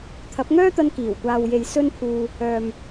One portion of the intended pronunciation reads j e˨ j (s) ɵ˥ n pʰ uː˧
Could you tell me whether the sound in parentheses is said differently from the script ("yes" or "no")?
no